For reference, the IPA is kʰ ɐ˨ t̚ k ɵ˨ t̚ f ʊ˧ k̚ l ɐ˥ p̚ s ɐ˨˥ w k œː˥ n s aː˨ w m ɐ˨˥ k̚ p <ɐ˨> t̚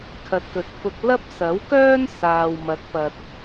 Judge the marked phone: correct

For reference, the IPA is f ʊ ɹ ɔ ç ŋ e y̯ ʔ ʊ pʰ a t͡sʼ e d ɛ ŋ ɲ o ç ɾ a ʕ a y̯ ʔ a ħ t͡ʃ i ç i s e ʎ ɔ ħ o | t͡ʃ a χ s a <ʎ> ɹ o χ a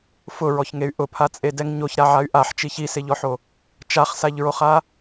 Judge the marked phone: correct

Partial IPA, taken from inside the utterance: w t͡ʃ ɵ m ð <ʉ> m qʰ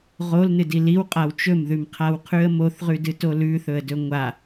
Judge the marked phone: correct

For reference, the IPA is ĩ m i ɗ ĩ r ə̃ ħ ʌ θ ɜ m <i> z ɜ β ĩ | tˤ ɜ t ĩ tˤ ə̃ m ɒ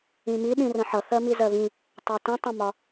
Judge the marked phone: correct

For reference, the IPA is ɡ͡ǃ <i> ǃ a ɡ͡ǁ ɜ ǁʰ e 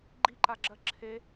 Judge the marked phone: correct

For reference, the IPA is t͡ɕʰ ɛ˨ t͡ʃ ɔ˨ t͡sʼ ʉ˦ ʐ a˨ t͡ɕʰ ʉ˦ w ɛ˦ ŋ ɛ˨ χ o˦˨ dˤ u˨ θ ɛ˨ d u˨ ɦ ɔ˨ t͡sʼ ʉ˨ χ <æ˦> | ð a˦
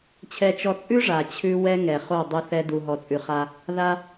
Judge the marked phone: incorrect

